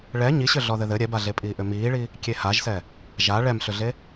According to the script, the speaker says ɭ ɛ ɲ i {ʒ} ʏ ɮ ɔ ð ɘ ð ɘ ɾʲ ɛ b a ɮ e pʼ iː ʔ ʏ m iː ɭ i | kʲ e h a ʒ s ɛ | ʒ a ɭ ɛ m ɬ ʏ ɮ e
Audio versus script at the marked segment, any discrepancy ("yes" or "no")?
yes